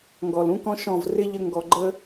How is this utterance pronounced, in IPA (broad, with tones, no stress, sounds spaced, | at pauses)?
ŋ ɡ ɔ˨ l ũ˦ k ɔ̃˦ ʃ ɔ̃˦˨ v r ɪ˦ ʎ ə˧ ŋ ɡ ɔ˨ ɡ͡ǃ ə˦